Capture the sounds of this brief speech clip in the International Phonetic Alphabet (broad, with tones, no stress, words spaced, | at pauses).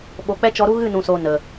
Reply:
ɓo˨k͡pɛ˦t͡ʃɔ˧ɾu˦ ɣɨ˦˨nũ˨soː˨ nə˨